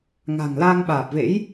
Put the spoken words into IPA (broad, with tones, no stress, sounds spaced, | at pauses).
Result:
ŋ a̤˨˩ ŋ l a˧ ŋ ɓ aː˨˩ p̚ v ḛ˧˥ j